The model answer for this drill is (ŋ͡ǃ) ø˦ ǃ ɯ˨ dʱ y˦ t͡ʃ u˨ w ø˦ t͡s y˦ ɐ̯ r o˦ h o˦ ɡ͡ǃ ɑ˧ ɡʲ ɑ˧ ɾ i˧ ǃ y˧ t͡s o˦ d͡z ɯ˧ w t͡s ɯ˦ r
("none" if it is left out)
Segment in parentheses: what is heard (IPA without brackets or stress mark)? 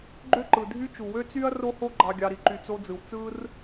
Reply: ɡ͡ǃ